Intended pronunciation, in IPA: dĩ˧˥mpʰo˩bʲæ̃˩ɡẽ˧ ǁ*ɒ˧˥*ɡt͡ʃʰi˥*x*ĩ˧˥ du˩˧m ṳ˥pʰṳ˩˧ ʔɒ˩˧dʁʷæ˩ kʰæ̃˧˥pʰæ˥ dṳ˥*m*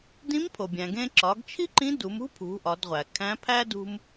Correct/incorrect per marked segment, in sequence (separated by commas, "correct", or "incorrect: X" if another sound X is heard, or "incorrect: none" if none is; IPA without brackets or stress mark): incorrect: ɒ˩˧, incorrect: ǃ, correct